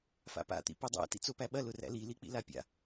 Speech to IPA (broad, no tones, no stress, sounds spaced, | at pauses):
f a̰ p a̰ t̪ ḭ p o dˤ æ̰ t ḭ t͡s o p æ ɓ ɐ l ʊ r æ̰ l i l i k͡p ḭ l a pʲ a̰